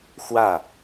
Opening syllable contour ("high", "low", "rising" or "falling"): falling